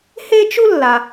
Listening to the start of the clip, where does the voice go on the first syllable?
high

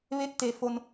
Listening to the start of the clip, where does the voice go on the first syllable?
rising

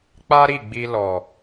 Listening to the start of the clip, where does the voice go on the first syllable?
high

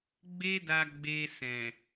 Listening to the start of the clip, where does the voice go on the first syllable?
high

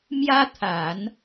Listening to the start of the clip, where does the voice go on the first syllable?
high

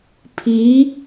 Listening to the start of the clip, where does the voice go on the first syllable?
rising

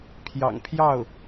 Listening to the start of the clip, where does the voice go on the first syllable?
low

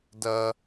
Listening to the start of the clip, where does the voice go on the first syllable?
high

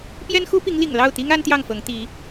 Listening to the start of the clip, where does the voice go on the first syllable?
high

